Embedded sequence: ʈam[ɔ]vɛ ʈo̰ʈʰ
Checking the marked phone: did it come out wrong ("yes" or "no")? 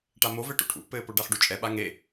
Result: yes